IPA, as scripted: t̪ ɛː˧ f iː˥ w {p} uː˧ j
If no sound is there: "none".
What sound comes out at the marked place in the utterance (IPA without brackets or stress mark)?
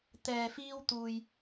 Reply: t̪